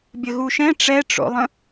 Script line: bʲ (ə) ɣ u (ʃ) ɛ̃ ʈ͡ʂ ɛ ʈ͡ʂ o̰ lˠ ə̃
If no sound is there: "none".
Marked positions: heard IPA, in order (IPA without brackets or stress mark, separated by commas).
ə, ʃ